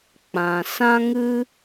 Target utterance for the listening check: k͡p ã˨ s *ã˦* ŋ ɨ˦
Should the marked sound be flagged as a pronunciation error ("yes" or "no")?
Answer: no